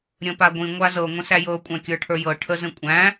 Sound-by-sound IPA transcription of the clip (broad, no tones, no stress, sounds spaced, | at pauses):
ɾʲ ə̃ p a ɡʷ ĩ ŋʷ a z ɤ ŋʷ ə̃ s æ j ɤ kʷʼ æ̃ kʲ ə˞ ʈʰ ə˞ j ɤ ʈʰ ə z ə̃ kʷʼ æ̃